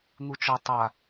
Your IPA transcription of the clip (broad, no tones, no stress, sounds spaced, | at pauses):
n̪ u t͡ʃ ɔ tˤ a